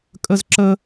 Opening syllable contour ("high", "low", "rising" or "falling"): high